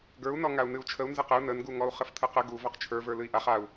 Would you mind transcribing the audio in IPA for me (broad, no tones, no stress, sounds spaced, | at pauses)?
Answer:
ɡ ə˞ u̯ n ɔ ŋ a u̯ n ɨ u̯ t͡ʃʰ ə u̯ n z ə q ə u̯ n ə n ɡ u ŋ ɔ u̯ χ ə f tʰ ə q ə ɡ u v ɔ q t͡ʃʰ ə˞ v ə˞ l ɨ i̯ ʔ a χ a u̯